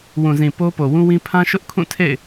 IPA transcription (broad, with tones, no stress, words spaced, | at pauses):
wũ˨zĩ˨ po˦ po˨wũ˦wĩ˦ pʰã˦ʃʊ˦ʔkʰũ˦˨ tʰḛ˦˨ɪ̯